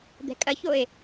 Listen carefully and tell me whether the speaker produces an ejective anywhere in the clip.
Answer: yes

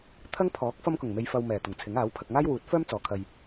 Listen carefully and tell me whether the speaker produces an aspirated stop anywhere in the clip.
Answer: yes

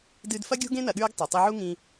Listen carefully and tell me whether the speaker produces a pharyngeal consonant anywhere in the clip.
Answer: yes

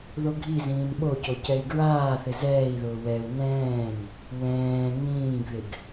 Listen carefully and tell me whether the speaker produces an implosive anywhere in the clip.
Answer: yes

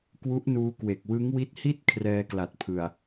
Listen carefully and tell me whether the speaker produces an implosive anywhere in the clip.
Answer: no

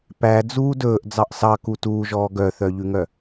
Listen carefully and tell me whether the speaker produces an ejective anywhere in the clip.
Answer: no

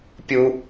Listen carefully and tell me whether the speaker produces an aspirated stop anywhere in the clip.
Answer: no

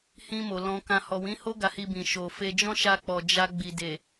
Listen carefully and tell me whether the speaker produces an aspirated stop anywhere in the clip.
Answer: no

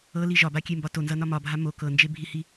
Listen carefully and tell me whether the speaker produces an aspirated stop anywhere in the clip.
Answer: no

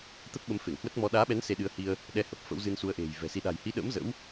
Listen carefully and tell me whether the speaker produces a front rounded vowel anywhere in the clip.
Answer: no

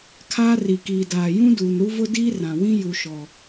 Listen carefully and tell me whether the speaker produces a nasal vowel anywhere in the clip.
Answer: yes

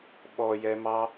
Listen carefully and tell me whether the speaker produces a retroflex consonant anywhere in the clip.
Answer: no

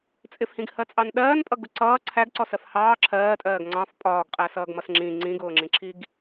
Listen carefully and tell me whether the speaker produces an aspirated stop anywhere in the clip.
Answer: yes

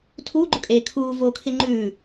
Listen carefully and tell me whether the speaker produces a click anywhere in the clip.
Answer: yes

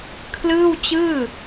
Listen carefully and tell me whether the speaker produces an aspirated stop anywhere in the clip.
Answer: yes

